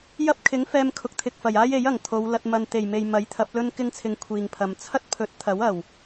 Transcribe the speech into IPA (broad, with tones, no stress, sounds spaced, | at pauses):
j ɐ˥ p̚ kʰ ɪ˨˥ ŋ f ɛː˧ m kʰ ʊ˨ k̚ t̪ʰ ɪ˨ k̚ f ɐ˨˩ j aː˥ j e˨˥ j ɐ˨˩ ŋ t̪ʰ o˨˧ w l ɐ˧ t̚ m ɐ˨ n t̪ e˨˩ j m e˨ j m ɐ˨˥ j t̪ʰ ɐ˨˥ p̚ l ɵ˥ n k ɪ˥ ŋ t͡sʰ ɪ˧ ŋ kʷʰ iː˨ ŋ pʰ ɐ˨ m t͡sʰ ɐ˥ t̚ pʰ ɵ˨˥ t̚ t̪ʰ ɐ˨˥ w ɐ˨˩ w